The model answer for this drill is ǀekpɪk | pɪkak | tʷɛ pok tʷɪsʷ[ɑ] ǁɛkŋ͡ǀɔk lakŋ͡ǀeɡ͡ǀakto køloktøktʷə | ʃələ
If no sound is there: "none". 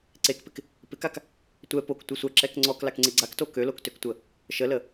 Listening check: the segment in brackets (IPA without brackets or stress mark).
ɐ